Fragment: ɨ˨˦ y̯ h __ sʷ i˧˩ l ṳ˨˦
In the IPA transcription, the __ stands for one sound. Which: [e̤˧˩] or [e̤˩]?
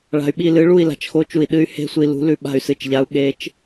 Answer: e̤˧˩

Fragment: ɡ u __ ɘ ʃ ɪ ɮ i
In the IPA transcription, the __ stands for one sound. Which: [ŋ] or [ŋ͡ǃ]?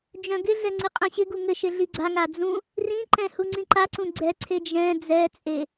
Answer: ŋ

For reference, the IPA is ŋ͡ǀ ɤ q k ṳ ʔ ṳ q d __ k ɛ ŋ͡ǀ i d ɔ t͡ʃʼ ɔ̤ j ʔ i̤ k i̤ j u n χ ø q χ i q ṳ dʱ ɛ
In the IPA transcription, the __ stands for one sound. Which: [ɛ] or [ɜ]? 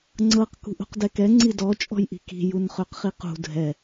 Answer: ɛ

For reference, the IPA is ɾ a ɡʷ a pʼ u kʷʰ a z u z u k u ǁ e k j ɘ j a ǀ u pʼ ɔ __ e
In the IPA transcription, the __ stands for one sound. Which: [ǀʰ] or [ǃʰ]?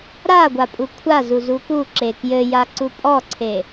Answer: ǀʰ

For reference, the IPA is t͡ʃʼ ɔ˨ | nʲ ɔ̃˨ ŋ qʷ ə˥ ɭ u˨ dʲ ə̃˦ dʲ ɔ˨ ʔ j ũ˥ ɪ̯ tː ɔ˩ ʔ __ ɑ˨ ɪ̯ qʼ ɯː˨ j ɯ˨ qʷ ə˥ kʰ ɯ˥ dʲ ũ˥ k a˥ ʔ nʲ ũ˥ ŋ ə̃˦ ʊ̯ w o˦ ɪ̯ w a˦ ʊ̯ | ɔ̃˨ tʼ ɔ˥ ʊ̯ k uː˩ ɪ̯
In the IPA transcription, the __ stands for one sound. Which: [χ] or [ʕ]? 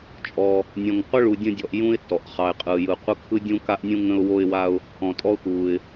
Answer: χ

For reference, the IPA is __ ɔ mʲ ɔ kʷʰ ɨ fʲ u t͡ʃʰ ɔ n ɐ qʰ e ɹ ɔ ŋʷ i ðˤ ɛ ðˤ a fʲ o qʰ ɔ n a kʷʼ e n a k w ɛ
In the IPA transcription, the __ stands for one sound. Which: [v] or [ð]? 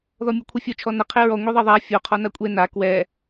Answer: ð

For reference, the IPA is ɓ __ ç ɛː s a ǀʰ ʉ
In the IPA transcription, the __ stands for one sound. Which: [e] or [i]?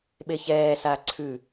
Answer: e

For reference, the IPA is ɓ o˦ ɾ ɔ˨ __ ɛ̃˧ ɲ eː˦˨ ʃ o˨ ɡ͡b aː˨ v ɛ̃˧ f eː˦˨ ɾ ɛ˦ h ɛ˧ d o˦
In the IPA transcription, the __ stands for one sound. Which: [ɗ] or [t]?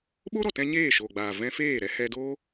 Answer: t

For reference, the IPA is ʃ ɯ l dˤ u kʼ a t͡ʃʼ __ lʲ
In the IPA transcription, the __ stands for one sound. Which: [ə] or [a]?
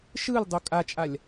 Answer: a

